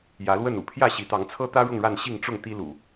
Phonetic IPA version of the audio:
j ä˨˦ l w ə˥˨ n ṵ˨˩ pʰ j ä˥˨ ɕ i˨˦ t̪ ɑ˨˦ ŋ t͡sʰ ɤ˦ t̪ ä˦ ɻ ʊ˥˨ ŋ ɻ a˥˨ n ɕ i˥˨ ŋ ʈ͡ʂ ʊ˥˨ ŋ t̪ i˦ l ṵ˨˩

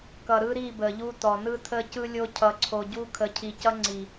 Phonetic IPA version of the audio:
k ʌ˨ ɾ ɯ˦ ɾ i˦˨ b ə˨ ʎ u˦ t ɔ˨ n ɯ˦ tʰ ə˦ c ɯ˦ lʲ o˦ cʰ ʌ˨ ǀʰ o˨ ɟ u˦ kʰ ə˨˦ cʰ i˨ c ʌ˦ ŋ͡ǀ i˨

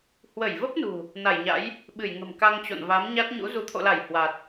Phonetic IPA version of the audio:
h w ə˧˩ j v ə˦˥ p̚ n ṳ˨˩ | n a˧˩ j ɲ a̰˧˥ j | ɓ ɨ˧˩ j ŋ ə̤˨˩ m k a˧ ŋ t͡ɕ o̰˧˨ n v a˨˦ m ɲ a˦˥ t̚ ɲ ṵ˧˥ z u˧˩ t̪ʰ o̰˧˨ l a˧˩ j h w a˨˩ t̚

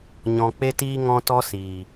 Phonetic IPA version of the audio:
ɲ ɔ̃˨ k͡p e˧ t iː˧ ŋ ɔ̃˧ t ɔ˦ s iː˨

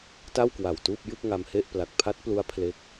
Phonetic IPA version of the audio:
t a˥˩ w k w a˨˩ w t uː˥˩ p̚ j ɯ˥˩ k̚ ŋ a˧ m h e˥˩ ʔ p l a˨˩ k̚ pʰ a˦˥ t̚ p l u˦˥ a̯ pʰ l e˦˥ k̚

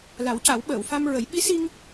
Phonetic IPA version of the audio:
l a˨˩˦ w c a˨˩˦ w ɓ əː˨˩˨ w f a˧ m ɹ ə˨˩˦ j ɓ i˧˥ s i˧ ŋ

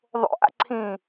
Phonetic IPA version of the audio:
ðˤ o̰ ʔ a̰ ǀʰ ĩː

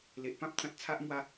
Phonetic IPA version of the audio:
l e˨ ʔ p ã˦ p̚ t͡s ã˨ t̚ t͡sʰ a˦ ʔ m w a˦

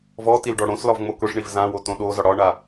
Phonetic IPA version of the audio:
v ɔ t i l ɖ ɔ ɽ õ s l ɒ v ŋ͡m o k ʊ ʂ ɳ i v z ã w o t õ ɗ o z ɒ ɽ ɒ ɳ a

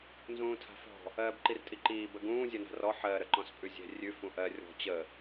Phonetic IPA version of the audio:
n z ũː tʰ a̤ f ɔ̤ | ɜː b ǃ i r tʼ i ǃ iː b ə ɡ ũː zʲ ɜ n a̤ r ɔ ħ ɜ ɾ ə ǃ ɔ̃ s pʼ ʉ zʲ ɛ̤ rʲ ʉ f ũ ʔ ɜ rʲ ɔ̤ t͡ɕ ə

